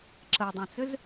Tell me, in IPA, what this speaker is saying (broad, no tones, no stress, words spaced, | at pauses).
ǁədˤãt͡sʏz